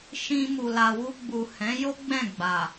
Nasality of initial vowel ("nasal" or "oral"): nasal